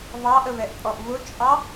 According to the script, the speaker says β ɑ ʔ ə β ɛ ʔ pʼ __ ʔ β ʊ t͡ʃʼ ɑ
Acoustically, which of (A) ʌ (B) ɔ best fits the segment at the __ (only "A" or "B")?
B